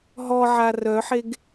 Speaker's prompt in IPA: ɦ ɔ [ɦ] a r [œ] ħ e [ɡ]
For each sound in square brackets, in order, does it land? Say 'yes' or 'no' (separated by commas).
no, yes, yes